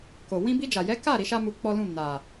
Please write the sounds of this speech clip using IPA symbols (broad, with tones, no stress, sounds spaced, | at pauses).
k o˨ w ĩ˧ b i˧ d͡ʒ a˨ j ɛ˨˦ k a˦˨ ɾ i˨˦ ʃ a˦ m u˧ k͡p ɔ˦ l ũ˦˨ n a˨